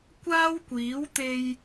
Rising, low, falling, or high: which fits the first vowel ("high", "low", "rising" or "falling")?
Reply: high